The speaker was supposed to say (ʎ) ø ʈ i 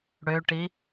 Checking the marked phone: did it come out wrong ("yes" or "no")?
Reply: yes